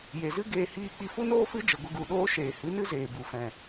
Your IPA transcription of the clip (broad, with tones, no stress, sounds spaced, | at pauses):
j e˨ z ɨ˦ ɡ eː˧ h iː˧ k͡p i˧ f u˦ n oː˦ f ɨ˦ d͡ʒ ə˨ ɡʷ ə˧ ɡ u˨ ɗ oː˦ ʃ eː˨ h ɨ˨˦ n ɨ˦ z eː˨ b u˨ f ɛ̃˨